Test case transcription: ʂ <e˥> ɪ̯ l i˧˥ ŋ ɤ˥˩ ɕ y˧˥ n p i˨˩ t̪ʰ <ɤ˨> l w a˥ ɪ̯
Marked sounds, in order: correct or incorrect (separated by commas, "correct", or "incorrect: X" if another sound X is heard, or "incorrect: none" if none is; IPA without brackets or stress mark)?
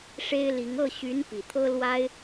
correct, incorrect: ɤ˥